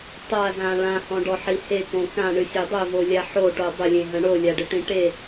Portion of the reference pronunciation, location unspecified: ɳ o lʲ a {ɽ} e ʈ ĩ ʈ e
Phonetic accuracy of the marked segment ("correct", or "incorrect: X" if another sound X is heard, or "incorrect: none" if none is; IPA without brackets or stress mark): incorrect: ɖ